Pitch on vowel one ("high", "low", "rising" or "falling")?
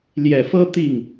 low